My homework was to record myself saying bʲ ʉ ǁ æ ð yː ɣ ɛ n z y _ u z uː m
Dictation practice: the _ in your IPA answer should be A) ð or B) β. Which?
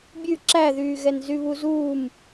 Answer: B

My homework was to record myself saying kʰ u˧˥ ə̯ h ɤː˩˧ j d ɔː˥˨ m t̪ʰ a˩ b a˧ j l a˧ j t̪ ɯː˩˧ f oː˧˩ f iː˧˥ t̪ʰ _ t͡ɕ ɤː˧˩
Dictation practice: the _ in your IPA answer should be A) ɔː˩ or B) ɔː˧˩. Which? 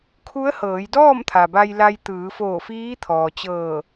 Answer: A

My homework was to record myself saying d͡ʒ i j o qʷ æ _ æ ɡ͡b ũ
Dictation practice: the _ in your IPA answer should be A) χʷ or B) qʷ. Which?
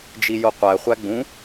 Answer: A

